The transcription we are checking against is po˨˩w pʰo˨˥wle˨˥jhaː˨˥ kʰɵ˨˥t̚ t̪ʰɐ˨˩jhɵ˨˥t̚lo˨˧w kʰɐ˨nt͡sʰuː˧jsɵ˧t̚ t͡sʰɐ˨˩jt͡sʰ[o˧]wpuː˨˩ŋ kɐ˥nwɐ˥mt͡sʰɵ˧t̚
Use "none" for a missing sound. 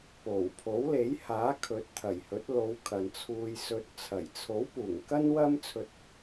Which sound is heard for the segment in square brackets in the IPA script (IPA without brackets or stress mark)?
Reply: o˨˥